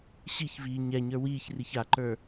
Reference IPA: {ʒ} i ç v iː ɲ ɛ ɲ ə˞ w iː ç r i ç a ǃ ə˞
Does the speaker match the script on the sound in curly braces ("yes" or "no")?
no